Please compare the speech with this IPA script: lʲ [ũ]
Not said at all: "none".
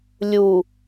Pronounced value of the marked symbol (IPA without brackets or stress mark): u